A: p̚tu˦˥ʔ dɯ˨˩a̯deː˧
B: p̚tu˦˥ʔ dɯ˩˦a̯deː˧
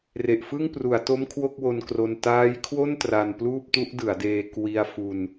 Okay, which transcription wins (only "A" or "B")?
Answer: B